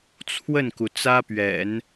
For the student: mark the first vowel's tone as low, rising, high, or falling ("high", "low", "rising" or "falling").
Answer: falling